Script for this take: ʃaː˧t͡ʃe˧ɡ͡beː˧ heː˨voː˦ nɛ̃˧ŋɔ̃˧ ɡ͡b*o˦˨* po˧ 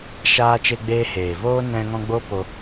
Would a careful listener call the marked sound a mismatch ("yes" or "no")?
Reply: yes